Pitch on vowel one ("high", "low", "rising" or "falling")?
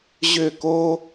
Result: falling